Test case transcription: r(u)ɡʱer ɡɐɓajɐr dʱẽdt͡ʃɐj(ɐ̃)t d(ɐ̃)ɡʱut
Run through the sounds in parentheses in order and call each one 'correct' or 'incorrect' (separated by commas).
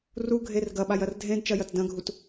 correct, incorrect, correct